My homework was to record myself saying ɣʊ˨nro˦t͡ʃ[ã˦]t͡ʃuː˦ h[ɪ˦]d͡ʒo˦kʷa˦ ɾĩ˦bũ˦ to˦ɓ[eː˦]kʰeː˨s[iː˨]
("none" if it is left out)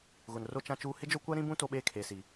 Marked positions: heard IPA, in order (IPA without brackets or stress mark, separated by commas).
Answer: ã˦, ɪ˦, eː˦, i˨